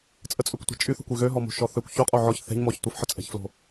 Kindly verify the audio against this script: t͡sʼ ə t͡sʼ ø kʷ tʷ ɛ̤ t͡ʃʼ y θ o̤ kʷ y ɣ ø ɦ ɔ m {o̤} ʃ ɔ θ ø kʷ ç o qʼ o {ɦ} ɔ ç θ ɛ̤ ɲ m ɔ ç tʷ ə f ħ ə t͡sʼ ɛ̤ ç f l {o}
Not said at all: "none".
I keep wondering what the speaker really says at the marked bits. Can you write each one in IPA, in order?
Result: o̤, ʕ, o̤

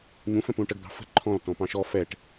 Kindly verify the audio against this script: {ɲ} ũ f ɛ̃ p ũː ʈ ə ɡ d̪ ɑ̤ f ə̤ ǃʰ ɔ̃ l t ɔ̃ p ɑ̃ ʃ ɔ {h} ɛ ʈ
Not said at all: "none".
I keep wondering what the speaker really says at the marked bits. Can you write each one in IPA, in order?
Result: ɲ, f

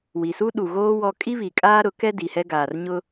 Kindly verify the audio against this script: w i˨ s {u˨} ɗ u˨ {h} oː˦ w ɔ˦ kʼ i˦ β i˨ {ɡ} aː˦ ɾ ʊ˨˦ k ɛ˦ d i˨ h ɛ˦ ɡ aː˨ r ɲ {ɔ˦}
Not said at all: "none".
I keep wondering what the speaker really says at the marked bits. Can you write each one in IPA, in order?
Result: u˦, ɣ, kʼ, ʊ˦

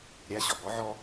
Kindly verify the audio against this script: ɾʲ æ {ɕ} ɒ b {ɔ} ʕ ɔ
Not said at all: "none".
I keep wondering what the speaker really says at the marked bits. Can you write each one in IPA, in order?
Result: ɕ, ɔ

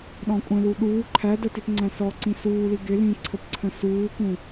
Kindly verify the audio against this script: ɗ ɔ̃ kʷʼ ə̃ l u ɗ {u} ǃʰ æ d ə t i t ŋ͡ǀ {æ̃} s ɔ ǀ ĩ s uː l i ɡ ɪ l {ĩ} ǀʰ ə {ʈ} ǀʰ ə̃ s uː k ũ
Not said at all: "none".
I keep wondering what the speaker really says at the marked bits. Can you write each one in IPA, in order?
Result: uː, æ̃, ĩ, p

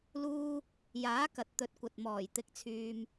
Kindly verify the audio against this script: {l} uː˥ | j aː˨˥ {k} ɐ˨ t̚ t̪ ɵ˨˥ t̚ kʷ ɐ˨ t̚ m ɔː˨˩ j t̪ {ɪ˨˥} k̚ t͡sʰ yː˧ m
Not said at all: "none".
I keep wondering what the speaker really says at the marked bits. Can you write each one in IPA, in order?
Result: l, k, ɪ˧

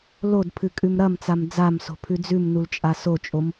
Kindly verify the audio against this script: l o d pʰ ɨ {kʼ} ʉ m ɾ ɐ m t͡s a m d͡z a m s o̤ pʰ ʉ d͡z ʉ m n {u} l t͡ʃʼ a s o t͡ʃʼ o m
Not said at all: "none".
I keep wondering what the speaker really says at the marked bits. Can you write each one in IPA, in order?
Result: kʼ, u

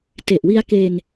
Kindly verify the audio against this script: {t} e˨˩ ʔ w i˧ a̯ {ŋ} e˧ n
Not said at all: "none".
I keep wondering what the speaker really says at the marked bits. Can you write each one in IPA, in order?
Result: t, k

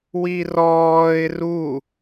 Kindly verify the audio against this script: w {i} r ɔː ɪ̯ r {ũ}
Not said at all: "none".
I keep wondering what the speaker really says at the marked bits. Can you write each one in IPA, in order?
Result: i, u

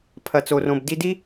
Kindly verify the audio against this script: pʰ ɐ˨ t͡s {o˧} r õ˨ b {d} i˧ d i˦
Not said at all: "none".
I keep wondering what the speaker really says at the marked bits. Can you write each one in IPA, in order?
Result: o˨, d

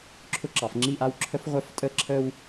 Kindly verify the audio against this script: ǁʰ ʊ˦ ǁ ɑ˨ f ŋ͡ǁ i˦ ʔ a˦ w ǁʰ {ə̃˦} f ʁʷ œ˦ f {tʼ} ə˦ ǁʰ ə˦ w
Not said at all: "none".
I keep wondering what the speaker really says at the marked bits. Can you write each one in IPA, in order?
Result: ə˦, tʼ

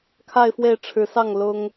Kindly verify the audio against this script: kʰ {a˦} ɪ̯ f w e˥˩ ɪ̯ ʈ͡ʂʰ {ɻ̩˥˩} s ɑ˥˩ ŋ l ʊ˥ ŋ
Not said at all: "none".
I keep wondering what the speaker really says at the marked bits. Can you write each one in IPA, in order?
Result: a˥˧, ɻ̩˧˥

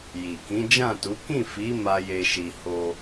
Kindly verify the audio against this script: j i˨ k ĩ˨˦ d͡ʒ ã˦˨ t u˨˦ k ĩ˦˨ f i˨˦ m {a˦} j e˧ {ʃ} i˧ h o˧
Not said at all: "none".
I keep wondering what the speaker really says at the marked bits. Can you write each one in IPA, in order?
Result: a˦, ʃ

